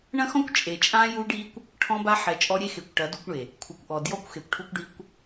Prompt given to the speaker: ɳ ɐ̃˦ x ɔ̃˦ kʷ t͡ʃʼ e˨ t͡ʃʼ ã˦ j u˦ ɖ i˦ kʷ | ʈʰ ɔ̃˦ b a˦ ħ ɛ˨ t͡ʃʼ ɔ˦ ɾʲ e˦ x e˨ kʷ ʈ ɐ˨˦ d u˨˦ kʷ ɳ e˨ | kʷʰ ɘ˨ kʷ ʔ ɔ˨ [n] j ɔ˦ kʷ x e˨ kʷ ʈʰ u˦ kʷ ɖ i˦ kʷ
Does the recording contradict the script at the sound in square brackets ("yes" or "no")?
yes